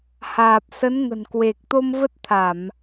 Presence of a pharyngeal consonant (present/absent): absent